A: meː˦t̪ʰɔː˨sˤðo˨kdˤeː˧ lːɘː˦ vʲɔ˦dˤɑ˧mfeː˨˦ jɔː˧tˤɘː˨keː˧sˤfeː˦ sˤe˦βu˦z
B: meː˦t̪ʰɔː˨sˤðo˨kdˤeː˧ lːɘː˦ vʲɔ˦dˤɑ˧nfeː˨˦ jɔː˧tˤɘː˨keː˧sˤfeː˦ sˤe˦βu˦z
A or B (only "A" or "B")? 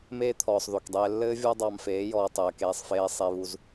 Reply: A